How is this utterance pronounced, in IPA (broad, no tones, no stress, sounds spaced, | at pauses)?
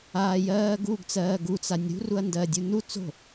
aː j ɜː ɡ u ɡ t͡s ɜː ɡ u t͡s a nʲ ɾ ṳ r u ɐ̯ n d ɜ dʲ u n u t͡s o̤